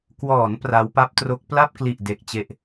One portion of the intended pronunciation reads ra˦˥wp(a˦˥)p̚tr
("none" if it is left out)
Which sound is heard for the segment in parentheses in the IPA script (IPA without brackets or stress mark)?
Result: a˦˥